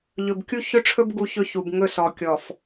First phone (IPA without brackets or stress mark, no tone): ʎ